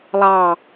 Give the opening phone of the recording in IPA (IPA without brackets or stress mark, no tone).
lˠ